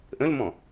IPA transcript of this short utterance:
ʔ ə̃ l m ɔ̃

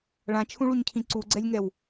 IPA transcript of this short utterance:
ɭ ã t͡ʃʰ ũ ɭ u ɲ cʰ ĩ ǀ u ɡ͡ǀ ɛ lʲ ŋ ɛ w

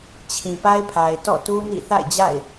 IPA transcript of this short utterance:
t͡ɕʰ ĩ˨ p a˦ ɪ̯ pʰ a˨ ɪ̯ t ɔ̰˦˨ t u˦ n ḭ˦˨ θ a̰˦˨ ɪ̯ d͡ʑ a̰˦˨ ɪ̯

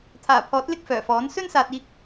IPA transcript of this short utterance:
t̪ʰ aː˨˩ pʰ ɔː˨˥ t̚ l ɪ˥ k̚ f œː˨˩ f ɔː˨˥ n s ɵ˥ n s aː˨ t̚ iː˧ k̚

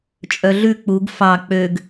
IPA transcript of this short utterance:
t͡ʃʼ œ ɮ ʉ k͡p u ɡ f ɑ k͡p ø ɡ

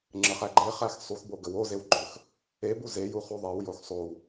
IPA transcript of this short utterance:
ŋ͡ǁ ə χ æ ɡ͡ǃ e χ æ x sˤ u x b o ɡ ə w o z e w ɡ͡ǃ ɵ x | e b u z e j u χ u ðˤ e w j o x sˤ o w

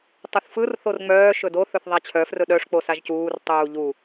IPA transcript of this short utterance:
tˤ ɯ θ f ɯ r θ o r ŋ͡m œː ʃ ɵ d o θ ɵ θ ðˤ a t͡ɕʰ œ f r ɵ ɗ œ ʂ k͡p o s a ʒ c uː r tˤ uː ʎ u

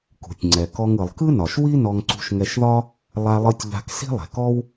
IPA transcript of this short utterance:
k ṳ˩ tʲ ŋ͡ǀ ɛ˩ k ɔ˧ ŋ ɯ˩ lˠ k ɯ˥ n ɒ˩ ʃ w i˥ n ɔ˧ ŋ ǀ ṳ˧ ʃ ŋ ɛ˧ ʃ ð ɒ˥ | lˠ a˧ lˠ ɯ˧ tʲ ʎ a̤˧ k s i̤˥ lˠ ɛ̤˩ k ɔ˥ w

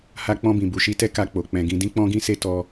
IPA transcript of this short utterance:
h a˧ k͡p ɔ̃˧ b ĩ˨ b u˨ ʃ i˧ t ɛ˦ k a˧ k͡p o˨ k͡p ɛ̃˧ ɡ ĩ˦ d ĩ˦ k͡p ɔ̃˦ ɡ ĩ˦ s e˦ t ɔ˦

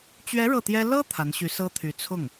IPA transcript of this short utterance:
t͡ɕ ɥ ɛ˧˥ ɻ ɤ˥˩ t̪ j ɛ˥ l ɤ˥ t̪ʰ a˧˥ n ɕ y˧˥ s ɤ˥ t̪ʰ y˧˥ t͡sʰ ʊ˥˩ ŋ

